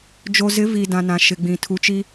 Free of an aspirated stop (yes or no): no